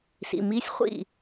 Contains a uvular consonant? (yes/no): yes